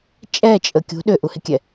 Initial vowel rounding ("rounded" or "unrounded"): unrounded